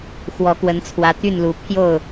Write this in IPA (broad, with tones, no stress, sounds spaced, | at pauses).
x w ɔ˨˦ k w ə˨˦ n t͡sʰ w ä˨˦ t̪ y˥˨ n l u˨˦ pʰ j o˥˨ ʊ̯